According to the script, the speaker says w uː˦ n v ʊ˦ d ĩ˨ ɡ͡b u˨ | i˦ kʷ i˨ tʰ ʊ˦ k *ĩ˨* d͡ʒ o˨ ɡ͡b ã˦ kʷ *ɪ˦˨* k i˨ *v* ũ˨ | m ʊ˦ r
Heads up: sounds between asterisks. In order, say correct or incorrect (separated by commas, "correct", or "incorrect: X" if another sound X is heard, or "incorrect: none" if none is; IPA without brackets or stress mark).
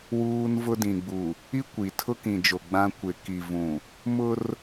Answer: correct, incorrect: ɪ˨, correct